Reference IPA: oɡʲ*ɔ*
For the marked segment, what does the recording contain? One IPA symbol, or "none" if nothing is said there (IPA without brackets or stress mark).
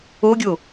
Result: o